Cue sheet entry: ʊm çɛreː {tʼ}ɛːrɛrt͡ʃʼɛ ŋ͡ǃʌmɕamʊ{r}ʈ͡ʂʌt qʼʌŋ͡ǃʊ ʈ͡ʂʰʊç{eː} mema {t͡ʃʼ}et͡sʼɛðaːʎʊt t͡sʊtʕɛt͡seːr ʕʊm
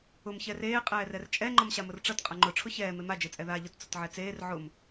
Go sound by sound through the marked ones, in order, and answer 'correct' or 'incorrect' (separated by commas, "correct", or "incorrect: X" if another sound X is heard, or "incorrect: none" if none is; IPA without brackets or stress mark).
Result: incorrect: qʼ, correct, incorrect: ɛː, incorrect: d͡ʒ